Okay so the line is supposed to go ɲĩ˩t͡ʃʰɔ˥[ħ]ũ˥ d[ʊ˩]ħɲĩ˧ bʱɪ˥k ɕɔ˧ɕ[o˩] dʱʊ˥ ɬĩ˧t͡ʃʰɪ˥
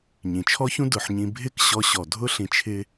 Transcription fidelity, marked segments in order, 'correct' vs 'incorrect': incorrect: ç, correct, incorrect: ɔ˩

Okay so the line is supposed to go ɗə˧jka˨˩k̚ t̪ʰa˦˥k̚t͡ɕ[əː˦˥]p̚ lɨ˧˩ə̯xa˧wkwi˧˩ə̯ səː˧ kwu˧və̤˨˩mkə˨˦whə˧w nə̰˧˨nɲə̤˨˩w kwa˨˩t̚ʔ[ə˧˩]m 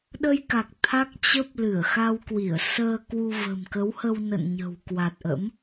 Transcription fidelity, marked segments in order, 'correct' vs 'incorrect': incorrect: ə˦˥, incorrect: ə̰˧˥

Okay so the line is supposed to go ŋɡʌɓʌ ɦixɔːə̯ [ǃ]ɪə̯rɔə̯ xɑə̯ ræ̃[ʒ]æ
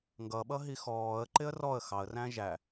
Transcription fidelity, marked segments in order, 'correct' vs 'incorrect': correct, correct

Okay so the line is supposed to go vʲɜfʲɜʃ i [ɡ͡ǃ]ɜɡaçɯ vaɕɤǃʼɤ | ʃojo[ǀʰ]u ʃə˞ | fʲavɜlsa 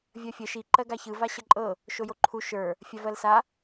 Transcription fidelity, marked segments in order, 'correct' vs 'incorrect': incorrect: ǃ, incorrect: ǃʰ

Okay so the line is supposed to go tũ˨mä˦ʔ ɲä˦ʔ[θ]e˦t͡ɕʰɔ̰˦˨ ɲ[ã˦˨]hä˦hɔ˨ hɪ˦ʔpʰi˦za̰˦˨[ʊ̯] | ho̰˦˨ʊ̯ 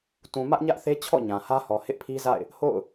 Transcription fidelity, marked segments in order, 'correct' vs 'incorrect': correct, incorrect: ã˨, incorrect: ɪ̯

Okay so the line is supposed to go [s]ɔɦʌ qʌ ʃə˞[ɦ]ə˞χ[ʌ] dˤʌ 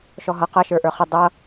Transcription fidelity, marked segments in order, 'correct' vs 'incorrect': incorrect: ʃ, incorrect: ʔ, incorrect: ə

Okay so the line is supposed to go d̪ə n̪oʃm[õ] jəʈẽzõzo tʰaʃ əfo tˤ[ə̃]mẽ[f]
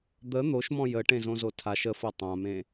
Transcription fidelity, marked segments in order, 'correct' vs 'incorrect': incorrect: ɔ̃, incorrect: ã, incorrect: none

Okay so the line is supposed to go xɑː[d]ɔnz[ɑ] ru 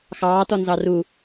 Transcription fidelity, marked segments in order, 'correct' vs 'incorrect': incorrect: t, correct

